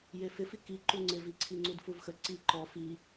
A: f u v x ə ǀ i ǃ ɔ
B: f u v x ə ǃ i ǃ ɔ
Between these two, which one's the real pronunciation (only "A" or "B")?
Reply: A